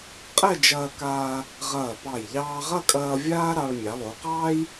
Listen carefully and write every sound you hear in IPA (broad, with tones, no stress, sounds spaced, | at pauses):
qʼ ɛ˥˧ d͡ʒ ɐː˧ k aː˧ | ʁ ɐː˧˩ p ɑ˧˩ j ʎ ɑː˧ ʁ ɐ˥˧ kʼ ɐː˧ vʲ aː˥ ɾ ɑ˧ ɭ mʲ ɑ˩˧ lˠ o˩˧ q ɑː˥ j